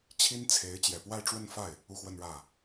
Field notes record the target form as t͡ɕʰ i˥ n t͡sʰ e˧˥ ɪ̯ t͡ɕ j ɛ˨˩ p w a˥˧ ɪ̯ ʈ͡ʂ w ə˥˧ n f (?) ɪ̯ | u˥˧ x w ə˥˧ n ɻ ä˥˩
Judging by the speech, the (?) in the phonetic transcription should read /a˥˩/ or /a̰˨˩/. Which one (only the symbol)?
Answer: a˥˩